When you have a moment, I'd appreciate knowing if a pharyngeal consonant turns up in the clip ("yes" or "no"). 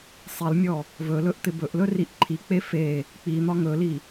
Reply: no